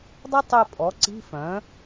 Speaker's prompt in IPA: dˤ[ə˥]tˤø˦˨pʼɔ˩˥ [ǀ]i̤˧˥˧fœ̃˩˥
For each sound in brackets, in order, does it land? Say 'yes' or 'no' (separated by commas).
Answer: yes, yes